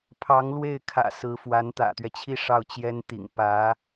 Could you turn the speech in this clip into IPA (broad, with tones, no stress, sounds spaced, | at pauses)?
pʰ ɑ˧˥ ŋ l w e˥˩ ɪ̯ kʰ ä̰˨˩ s ɹ̩˧˥ f w a˧˥ n t̪ ä̰˨˩ t̪ ɥ ɛ˦ t͡ɕʰ i˥˧ ʂ ɑ˥˩ ʊ̯ t͡ɕ j ɛ˥ n t̪ ḭ˨˩ ŋ p ä˧˥